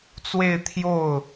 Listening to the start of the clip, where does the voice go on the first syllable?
falling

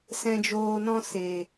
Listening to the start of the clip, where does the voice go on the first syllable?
low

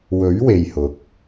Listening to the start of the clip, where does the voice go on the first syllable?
rising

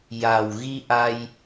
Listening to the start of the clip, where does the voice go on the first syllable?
low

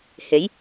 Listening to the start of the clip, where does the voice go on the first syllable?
rising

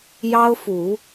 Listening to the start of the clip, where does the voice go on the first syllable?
high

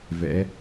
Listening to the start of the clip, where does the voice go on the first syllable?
rising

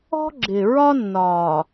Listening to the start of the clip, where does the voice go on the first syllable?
high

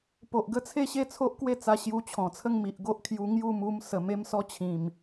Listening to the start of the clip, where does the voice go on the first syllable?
low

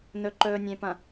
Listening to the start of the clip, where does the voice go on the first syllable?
low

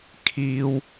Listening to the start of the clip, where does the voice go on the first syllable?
high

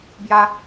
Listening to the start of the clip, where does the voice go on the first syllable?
high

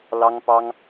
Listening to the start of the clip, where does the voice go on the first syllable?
high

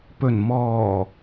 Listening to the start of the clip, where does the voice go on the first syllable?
low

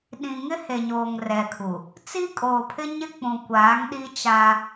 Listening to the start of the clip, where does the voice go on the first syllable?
low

